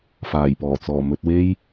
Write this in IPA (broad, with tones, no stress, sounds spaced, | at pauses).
f aː˨˩ j p ɔː˨˩ t͡s ɔː˨˩ m ɵ˧ t̚ w e˥ j